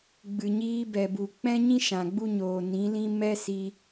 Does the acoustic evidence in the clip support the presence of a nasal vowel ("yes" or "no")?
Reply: yes